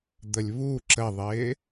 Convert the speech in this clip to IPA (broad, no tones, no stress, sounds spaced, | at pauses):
d̪ ə lʲ β u ǁ ə ðˤ ɪː